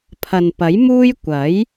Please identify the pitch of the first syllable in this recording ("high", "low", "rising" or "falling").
low